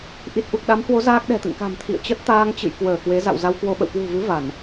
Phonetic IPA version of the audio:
ʔ i˨˩ t̚ ʔ u˨˩ k̚ ɗ a˨˦ m h w o˨˦ z aː˦˥ k̚ ɗ ɛ̤˨˩ t̪ ɨ̰˧˨ ŋ k a̤˨˩ m t̪ʰ ḭ˧˨ ə̯ t͡ɕ ə˦˥ t̚ t̪ aː˧ ŋ t͡ɕ ɨ̰˧˨ j k w əː˧˩ k w e˨˦ z a̰˧˨ w z a˧ w k w o˧ ɓ ə̰˧˨ w k w ṳ˨˩ v ɨ˨˦ v a˧˩˨ n

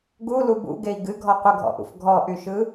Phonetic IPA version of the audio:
ɡ u l u b ṵ ɡ e i̯ ɡ ɨ ɡʱ ɔ qʷ ə ɡʱ ɔ̰ ʔ ṵ f ɡʱ ɔ ʔ y ʃ ɯ

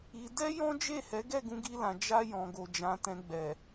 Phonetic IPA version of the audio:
i˧ d ɛ˦ j ɔ̃˦ d͡ʒ e˦˨ h ɛ˨˦ ɡ ɛ˦˨ ɡ ũ˨˦ ɡ i˧ l ã˨ d͡ʒ a˧ j ɔ̃˨ ɡ o˨ d͡ʒ ã˨˦ t ɛ̃˧ ɡ͡b ɛ˨

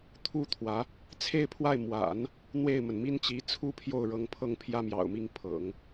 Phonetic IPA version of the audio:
t̪ʰ u˥˩ t̪ʰ w ä˧˥ | t͡sʰ e˥˧ ɪ̯ pʰ w a˥˩ ɪ̯ m w a̰˨˩˦ n | n̪ w e˥˩ ɪ̯ m ə˩ n m i˥ n t͡ɕ i˧˥ t͡sʰ u˥ pʰ j o˥˩ ʊ̯ ɻ ɤ˧˥ ŋ pʰ ɤ˥˩ ŋ pʰ j ä˥ m j ɑ̰˨˩ ʊ̯ m i˥˩ ŋ pʰ ɤ̰˨˩˦ ŋ

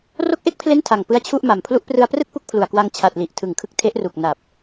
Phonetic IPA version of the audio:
r o˦˥ k̚ ʔ e˦˥ k̚ pʰ l e˦˥ n tʰ a˨˩ ŋ p ɯ˦˥ a̯ t͡ɕʰ u˥˩ ʔ m a˨˩ m pʰ l u˦˥ ʔ p r ɯ˧ a̯ p r ɯ˥˩ k̚ p u˦˥ k̚ pʰ l u˨˩ a̯ k w a˧ ŋ t͡ɕʰ a˨˩ t̚ l i˨˩ ʔ tʰ ɯ˨˩ ŋ kʰ ɯ˦˥ k̚ tʰ e˦˥ ʔ r u˨˩ k̚ n a˨˩ p̚

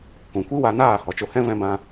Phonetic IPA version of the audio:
k ũ˨ kʷ i˦ w a˧ n aː˦˨ h ɔ˨ t͡ʃ o˧ h ɛ̃˦ v ɛ̃˧ b ã˧

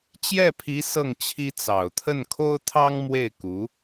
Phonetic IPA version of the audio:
t͡ɕ j ɛ˥˩ pʰ i˧˥ s ɤ˥˩ ŋ t͡ɕʰ i˥ t͡s ɑ˨˩ ʊ̯ t̪ʰ ə˥˩ n kʰ o˥ ʊ̯ t̪ʰ ɑ˥ ŋ m w e˥˩ ɪ̯ k u˧˥

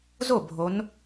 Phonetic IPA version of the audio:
z o˥˩ bʱ o˨˦ n

